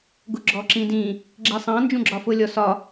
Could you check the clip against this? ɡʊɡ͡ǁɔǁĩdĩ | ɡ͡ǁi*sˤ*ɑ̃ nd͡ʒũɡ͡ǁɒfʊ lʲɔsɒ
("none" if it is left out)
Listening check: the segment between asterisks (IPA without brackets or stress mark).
sˤ